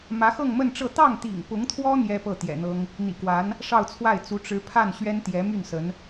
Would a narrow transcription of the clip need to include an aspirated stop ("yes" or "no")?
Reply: yes